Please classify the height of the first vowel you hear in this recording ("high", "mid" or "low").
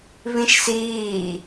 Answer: high